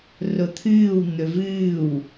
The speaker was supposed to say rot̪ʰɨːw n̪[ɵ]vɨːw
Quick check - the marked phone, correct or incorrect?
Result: correct